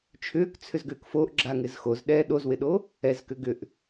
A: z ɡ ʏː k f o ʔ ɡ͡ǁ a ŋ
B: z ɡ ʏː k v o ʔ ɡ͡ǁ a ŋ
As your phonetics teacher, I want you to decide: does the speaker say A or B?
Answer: A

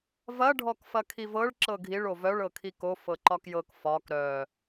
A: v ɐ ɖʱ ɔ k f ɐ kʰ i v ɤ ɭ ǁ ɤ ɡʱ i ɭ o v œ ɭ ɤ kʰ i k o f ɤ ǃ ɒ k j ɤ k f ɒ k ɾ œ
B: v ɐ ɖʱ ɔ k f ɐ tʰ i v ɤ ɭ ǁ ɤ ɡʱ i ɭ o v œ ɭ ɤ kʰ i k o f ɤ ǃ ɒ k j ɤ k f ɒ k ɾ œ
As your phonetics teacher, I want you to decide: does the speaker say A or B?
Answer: A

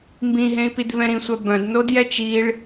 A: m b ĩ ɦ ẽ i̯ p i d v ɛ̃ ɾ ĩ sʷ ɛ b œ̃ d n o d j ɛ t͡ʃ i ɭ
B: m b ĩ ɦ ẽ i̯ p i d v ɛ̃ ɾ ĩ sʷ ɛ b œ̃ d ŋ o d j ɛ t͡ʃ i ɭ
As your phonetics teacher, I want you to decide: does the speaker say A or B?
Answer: A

